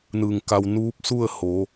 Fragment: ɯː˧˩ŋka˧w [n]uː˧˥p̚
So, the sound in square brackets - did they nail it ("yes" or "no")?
yes